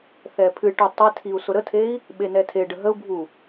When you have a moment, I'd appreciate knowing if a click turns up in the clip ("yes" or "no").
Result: no